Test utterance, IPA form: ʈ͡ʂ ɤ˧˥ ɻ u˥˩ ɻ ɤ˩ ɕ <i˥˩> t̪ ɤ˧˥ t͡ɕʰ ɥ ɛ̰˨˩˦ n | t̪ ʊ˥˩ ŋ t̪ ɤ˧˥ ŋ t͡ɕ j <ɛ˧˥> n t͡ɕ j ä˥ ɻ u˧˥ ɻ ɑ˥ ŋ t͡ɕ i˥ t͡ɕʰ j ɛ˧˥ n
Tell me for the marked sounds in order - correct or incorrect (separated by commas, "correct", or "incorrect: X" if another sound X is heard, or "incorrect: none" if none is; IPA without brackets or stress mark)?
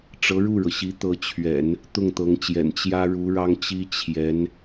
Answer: incorrect: i˧˥, incorrect: ɛ̰˨˩